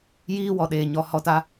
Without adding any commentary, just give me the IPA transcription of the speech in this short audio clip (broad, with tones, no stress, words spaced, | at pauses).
jiː˦wɔ˨ɗeː˨ ɲɔ˨˦hɔ˦˨ta˦